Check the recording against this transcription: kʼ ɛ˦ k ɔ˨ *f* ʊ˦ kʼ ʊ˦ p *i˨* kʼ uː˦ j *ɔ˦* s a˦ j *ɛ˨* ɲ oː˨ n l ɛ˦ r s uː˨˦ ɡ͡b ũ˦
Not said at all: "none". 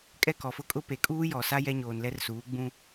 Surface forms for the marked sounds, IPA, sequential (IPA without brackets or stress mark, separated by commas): f, e˨, ɔ˨, ɛ˦